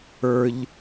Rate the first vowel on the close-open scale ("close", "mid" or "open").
mid